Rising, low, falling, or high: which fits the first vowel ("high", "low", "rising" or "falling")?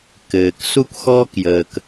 low